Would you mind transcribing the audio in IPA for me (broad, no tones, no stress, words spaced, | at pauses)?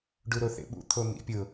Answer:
ɖuɾoθḛɓṵ t̪ʰon̪ḭpʲʊ